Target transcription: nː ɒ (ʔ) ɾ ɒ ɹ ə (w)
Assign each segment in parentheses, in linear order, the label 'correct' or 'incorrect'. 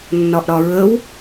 correct, correct

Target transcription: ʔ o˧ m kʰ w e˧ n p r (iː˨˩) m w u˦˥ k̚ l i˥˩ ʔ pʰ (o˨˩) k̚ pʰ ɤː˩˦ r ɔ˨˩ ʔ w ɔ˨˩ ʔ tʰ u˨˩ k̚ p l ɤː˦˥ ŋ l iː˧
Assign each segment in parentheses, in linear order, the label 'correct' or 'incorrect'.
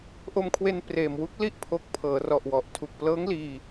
incorrect: eː˨˩, incorrect: o˦˥

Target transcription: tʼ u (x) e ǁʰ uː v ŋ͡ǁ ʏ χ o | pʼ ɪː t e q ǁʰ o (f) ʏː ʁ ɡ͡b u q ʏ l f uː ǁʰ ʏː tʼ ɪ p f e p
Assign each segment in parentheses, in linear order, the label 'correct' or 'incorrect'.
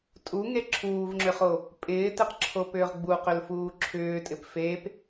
incorrect: ŋ, incorrect: p

